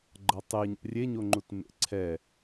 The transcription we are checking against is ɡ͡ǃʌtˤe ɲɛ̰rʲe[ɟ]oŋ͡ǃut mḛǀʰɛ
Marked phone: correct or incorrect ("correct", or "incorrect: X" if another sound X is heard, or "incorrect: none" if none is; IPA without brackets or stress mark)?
incorrect: ɲ